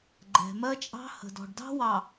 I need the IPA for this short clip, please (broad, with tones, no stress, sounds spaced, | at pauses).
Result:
ɡ͡ǃ ɛ̤˨ m ɜ˦ t͡ʃʼ ɑ̤˦ h ə̤˨ d ɔ̤˨ ɖ d ɑ̤˦ w ɑ˨